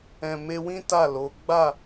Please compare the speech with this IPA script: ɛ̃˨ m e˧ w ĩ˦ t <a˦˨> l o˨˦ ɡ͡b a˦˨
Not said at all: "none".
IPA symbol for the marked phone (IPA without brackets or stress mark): a˦˨